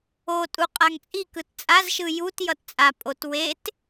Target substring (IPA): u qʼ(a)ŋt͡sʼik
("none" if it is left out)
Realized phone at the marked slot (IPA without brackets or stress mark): a